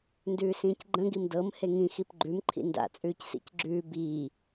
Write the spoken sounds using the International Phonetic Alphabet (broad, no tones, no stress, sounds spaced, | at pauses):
n d ʉː s ĩː c ɡ͡ǃ ə̃ ɡ i m d ɤ m h e ŋ ĩ x i p ɡ͡ǃ ʉ m ǃʰ ḭ n d a̰ t͡sʼ ʉː c s ḭ c ɡ͡ǁ ʉː b iː